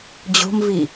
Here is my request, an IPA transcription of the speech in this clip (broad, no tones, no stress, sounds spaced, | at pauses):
d͡ʑ o̤ m v i